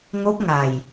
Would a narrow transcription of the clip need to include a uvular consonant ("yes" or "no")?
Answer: no